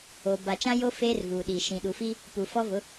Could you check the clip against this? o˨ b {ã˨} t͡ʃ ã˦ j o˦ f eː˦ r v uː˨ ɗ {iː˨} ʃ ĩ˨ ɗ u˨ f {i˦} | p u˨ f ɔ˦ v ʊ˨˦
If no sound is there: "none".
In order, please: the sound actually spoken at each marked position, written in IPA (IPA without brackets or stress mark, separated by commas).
a˨, i˨, i˦